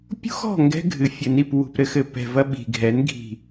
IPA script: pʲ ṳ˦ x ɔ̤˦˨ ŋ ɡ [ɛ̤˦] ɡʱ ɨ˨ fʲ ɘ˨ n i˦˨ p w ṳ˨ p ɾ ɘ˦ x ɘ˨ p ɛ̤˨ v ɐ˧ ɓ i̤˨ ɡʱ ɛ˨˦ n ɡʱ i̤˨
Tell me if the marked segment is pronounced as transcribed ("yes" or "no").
yes